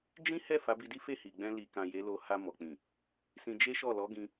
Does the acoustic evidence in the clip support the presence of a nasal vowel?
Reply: yes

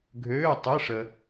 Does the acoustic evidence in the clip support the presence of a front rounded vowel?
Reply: yes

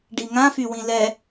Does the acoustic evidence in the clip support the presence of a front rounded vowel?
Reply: yes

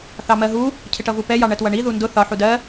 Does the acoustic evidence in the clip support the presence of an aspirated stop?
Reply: yes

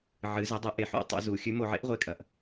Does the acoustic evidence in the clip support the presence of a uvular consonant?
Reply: yes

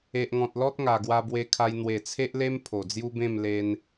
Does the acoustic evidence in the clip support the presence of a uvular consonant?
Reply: no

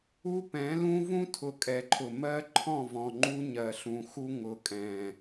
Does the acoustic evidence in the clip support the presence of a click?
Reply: yes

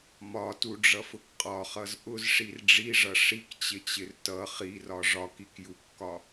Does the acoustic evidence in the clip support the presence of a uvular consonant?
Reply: yes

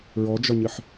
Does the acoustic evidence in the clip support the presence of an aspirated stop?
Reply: no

